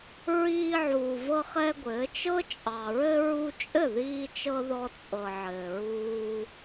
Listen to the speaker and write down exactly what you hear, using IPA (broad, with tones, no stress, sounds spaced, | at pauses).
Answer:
ɹ iː˧ ʕ uː˨ v ɤ˦ χ ɛ˦ ɡʷ ɘː˨˦ t͡ʃ ɤ˦ t͡ʃʼ ɑ˨ ɹ ɘ˦ ɹ u˦ t͡ʃʼ ɘ˦˨ ð iː˧ t͡ʃ ɤ˧ ð ɔ˧ t͡sʼ ɤ˨ ʕ ɘː˨ ɹ uː˧